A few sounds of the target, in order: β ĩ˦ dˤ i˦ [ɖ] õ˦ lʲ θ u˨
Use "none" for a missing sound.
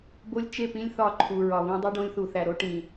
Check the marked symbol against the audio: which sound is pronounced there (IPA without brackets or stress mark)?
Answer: ɖ